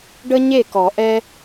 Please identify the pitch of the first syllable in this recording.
high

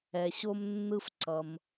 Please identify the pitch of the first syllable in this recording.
low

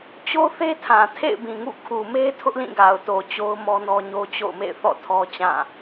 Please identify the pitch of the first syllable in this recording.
high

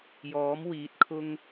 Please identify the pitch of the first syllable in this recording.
rising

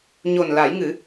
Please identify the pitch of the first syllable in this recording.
low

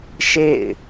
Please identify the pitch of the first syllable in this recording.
falling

